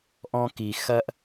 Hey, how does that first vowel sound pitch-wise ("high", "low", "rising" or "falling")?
high